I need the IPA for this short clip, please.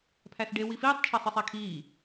pʰ æ s ɖ e w i f iː tˤ t͡ʃʰ æ sˤ e sˤ æ kʰ iː

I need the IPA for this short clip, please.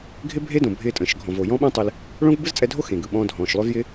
ɡʱ ɪ˥ bʱ e˥ d õ˩ bʱ ɪː˧ tʼ ə̃ː˩ ʃ ɡʱ ɔ̃˩ v o˩ j ɔ̃˥ ɓ ə̃ː˥ tˤ ɪ˧ l | ɭ õ˥ v b ɯ˥ z t͡sʼ ɛ˧ dʱ o˥ x ẽ˩ ɡ ɯ˩ ɓ ɔ̃ː˧ dʱ ɔ̃ː˩ ʃ lˠ ø˧ v j ɪ˥

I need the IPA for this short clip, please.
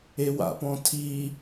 e w a̰ p ɔ̃ tʰ i

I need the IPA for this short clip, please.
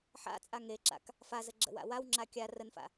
ħ a̰ t͡sʼ a ŋ e ǁ a̰ k | f a z ə ɡ͡ǁ ə̰ w a̰ w a w ŋ͡ǁ a kʲ a r ə n f a̰

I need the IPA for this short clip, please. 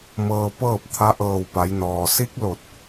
m ɤː˧ p ɤː˥˨ p̚ t̪ʰ a˧˥ ʔ ɤː˧˩ w p a˩˧ j n ɔː˩ s i˧˥ k̚ l o˧˩ t̚

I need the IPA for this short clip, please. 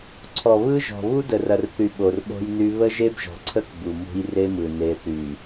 ǀʰ ɔ˨ β ɯ˦ ʒ ɔ̤˨ β u˦ d ə˨ r ɐ˨ r θ y˨ ɓ o˨ r ɓ o̤˦ j n y˦ β ə˦ ʒ e˦ b ʒ ɔ̤˨ ǀʰ ə˦ k b u˨ m ṳ˦ j r e˦ m ɯ˨ n e˨˦ θ y˨

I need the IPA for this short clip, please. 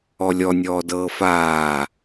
ɔ lʲ ɔ nʲ ɔː d ɤː f aː

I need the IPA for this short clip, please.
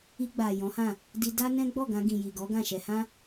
i˧ ɡ͡b a˨ j ɔ̃˨˦ h ã˦˨ | d i˧ d a˦ n ɛ̃˦ ɡ͡b ɔ˦˨ ɡ ã˧ ɡ ĩ˨ j i˨ ɡ ɔ˨˦ ɡ ã˦˨ ʃ ɛ˧ h ã˦

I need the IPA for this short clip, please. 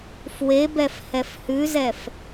f w e b ɛ f h ɛ f h ʉ z ɛ f

